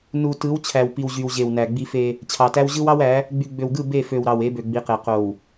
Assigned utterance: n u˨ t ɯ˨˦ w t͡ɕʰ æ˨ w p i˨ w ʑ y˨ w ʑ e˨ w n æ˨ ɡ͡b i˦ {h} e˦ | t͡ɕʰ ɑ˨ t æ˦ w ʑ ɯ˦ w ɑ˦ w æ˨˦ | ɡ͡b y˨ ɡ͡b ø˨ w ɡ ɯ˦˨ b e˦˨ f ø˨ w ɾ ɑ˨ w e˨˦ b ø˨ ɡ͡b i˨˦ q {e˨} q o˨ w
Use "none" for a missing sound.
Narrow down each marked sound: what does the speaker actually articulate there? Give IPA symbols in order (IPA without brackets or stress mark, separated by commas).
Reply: f, e˨